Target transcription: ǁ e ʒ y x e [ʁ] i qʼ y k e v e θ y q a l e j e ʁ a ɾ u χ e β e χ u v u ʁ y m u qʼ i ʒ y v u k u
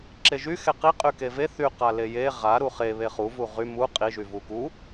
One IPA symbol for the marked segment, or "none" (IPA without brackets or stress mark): q